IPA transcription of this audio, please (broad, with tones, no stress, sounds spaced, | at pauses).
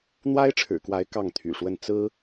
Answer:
n̪ w a˥ ɪ̯ ʈ͡ʂʰ ɻ̩˨˩ k w a˧˥ ɪ̯ k ɑ˥˩ ŋ t̪ʰ y̰˨˩ ʂ w ə˥˩ n t͡s ɹ̩˥